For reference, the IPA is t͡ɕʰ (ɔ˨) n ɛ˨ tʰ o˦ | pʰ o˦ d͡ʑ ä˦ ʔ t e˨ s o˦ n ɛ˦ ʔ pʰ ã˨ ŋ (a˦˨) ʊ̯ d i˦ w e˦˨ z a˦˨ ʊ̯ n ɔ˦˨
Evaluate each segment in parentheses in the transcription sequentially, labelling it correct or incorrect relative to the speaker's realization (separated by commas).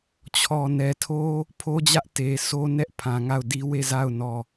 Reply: correct, correct